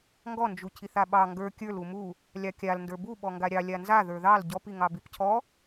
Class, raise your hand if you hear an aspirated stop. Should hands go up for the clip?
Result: yes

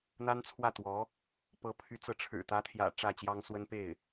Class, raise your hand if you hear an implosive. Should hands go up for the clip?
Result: no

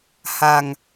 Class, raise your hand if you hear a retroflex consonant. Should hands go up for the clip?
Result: no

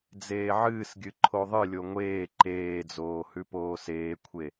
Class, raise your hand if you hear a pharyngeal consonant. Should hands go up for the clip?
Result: yes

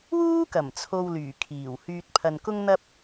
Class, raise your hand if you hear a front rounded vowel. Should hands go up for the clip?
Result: yes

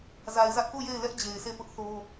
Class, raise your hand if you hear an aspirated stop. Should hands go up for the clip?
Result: no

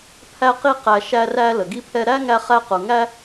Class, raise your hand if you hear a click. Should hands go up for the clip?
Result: no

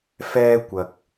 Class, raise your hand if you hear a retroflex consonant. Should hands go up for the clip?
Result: no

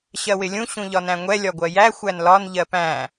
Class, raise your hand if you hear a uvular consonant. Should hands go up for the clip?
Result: no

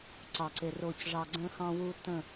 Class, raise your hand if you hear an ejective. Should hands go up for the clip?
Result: no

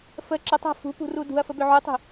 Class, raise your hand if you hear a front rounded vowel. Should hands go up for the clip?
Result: yes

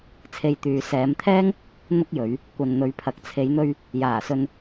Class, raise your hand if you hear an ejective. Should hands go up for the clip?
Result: no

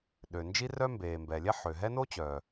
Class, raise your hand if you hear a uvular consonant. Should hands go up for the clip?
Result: no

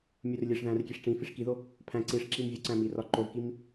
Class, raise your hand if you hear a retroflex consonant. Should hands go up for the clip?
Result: yes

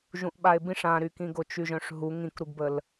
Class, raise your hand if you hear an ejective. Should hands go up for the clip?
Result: no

